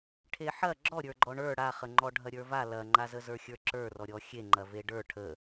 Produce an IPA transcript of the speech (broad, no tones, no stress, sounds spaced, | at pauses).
ʈʰ e ħ ɐ ɡ͡ǁ ɔ ɾʲ ə˞ ɡ͡ǃ ɔ ɳ ə˞ ɽ a χ ə ŋ͡ǃ ɔ ɖʱ ɐ ɾʲ ə˞ v a l ɐ ŋ͡ǃ a z ə z ə˞ xʲ ə˞ ǁ ə˞ r ɔ ɾʲ ɔ xʲ e ŋ͡ǃ ɐ v e ɖ ə˞ ʈʰ ə